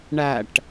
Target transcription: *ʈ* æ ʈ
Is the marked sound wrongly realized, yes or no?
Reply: yes